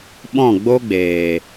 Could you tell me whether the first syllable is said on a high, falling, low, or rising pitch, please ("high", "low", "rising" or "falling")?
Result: falling